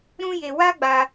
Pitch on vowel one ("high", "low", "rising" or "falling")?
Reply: high